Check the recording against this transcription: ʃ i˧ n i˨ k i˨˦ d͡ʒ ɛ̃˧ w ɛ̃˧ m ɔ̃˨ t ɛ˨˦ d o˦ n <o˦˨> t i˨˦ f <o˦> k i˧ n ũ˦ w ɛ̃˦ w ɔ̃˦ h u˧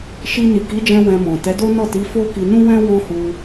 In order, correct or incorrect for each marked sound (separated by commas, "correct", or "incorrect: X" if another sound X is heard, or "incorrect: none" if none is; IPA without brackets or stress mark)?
incorrect: ɔ˦˨, correct